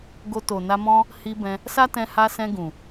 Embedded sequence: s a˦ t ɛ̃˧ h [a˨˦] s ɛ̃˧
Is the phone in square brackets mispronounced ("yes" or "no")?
yes